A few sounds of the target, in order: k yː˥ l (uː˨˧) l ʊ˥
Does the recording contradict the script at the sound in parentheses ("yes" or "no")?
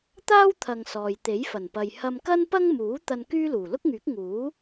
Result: yes